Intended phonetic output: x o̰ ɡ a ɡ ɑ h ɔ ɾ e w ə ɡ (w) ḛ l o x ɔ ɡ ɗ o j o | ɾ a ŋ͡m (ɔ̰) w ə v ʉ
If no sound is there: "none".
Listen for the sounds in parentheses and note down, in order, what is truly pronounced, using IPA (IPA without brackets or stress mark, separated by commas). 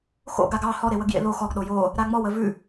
j, ɔ